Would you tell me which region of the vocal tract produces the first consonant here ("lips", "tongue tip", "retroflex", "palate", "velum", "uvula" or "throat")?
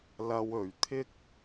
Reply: tongue tip